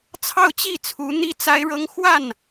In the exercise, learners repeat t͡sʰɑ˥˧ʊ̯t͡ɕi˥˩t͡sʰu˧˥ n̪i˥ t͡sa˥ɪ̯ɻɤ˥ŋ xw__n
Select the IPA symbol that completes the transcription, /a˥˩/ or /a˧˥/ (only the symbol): a˥˩